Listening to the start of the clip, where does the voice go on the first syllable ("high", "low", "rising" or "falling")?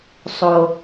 low